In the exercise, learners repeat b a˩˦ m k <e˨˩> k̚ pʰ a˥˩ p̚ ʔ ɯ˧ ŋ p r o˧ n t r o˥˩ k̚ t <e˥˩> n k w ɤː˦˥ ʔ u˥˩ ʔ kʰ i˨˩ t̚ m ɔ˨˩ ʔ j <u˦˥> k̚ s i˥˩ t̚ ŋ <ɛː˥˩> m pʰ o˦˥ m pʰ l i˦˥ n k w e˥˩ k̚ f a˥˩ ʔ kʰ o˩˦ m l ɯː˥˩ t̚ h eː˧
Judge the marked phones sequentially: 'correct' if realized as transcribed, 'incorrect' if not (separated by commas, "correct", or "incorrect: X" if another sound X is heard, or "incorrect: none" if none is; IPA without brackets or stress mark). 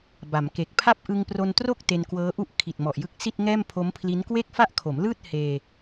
correct, incorrect: e˧, incorrect: ɯ˦˥, correct